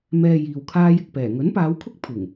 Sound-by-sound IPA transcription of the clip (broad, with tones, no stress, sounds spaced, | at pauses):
m ɛː˨ j iː˨ w kʰ aː˥ j ɪ˧ k̚ p ɛː˨˩ ŋ ɵ˨˥ n p aː˨˧ w kʰ ʊ˥ k̚ pʰ ɪ˨˩ ŋ